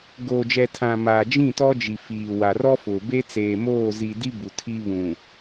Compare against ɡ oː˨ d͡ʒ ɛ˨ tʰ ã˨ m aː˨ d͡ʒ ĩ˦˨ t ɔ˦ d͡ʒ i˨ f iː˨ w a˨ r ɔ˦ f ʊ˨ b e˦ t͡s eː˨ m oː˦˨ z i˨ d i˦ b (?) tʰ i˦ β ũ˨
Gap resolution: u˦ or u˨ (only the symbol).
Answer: u˨